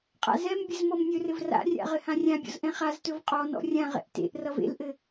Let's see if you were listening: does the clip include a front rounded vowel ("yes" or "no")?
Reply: no